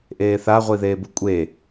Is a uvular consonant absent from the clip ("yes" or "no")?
no